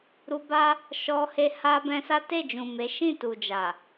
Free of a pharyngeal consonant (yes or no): yes